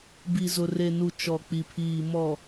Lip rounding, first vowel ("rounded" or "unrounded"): unrounded